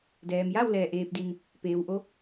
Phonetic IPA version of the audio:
dɛː˩mja˥˨w lɛː˧˩ʔeː˧p̚di˧n | peː˩wʔo˧˥

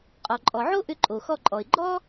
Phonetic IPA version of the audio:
qʼɔ˩ǃʼɔ˩ʕo˥ʔʏ˧ ǃʼo˩xɔ˧ǃʼɔ˩ɪ̯ ɡ͡ǃɔ˥

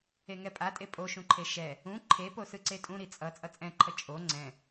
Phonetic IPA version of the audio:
eŋɛpʼatʼe pʼoʃũǃʰe ʃɛ | ũ ǃʰepo sɯǀetʼũ ɾit͡sʼʌ t͡sʼʌt͡sʼɛ̃ǃʰʌ t͡ʃʼo ŋ͡ǀɛ̃

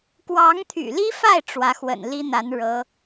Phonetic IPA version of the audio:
kwɑ˧˥ŋt̪ʰy̰˨˩li˥fa˥˩ɪ̯ ʈ͡ʂwä˧˥xwə̰˨˩n li˥n̪a˧˥n ɻɤ˧˥

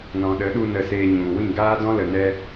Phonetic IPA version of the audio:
nɔ̃˨ɗə˨˦ɗu˧ nə˧seː˧ ɲũ˨ wĩ˦˨ɡaː˦ dɔ̃˦lə˨nɛ˧

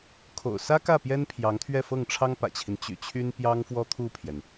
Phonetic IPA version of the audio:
kʰo̰˨˩ʊ̯sä˥kä˥˩ pjɛ˥npʰjɑ˧˥ŋt̪ʰɥɛ˥˧fɤ˥˩ŋ ʈ͡ʂʰɑ˥ŋpä̰˨˩t͡ɕʰi˦n t͡ɕy̰˨˩t͡ɕʰy˥npjɑ˥ŋfwɔ˥ t̪ʰu˥˩pʰjɛ˩n

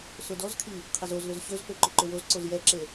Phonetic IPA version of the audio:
sʊdɔzkʰi | qʰɪzozlʏz ɕøzpø ǃʏǃʏwozǀoz jɛǁe

